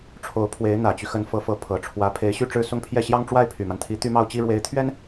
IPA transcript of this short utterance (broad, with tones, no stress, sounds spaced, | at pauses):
ʈ͡ʂʰ o˧˥ ʊ̯ pʰ w e˧˥ ɪ̯ n̪ ä˨˩ t͡ɕ y˦ x ə˧˥ n f ɤ˧˥ f ɤ˧˥ pʰ ɤ˨˩ ʈ͡ʂʰ w ä˧˥ pʰ e˧˥ ɪ̯ ɕ y˥˧ ʈ͡ʂ ɻ̩˥˧ s ʊ˥˧ ŋ pʰ j ɛ˥˩ ɕ j ɑ˥ ŋ ʈ͡ʂ w a˥˩ ɪ̯ pʰ y˨˩ m a˦ n t̪ʰ i˧˥ t̪ y˥ m ɑ˥ ʊ̯ t͡ɕ i˥ ɻ w e˧˥ ɪ̯ t̪ʰ ɥ ɛ˥ n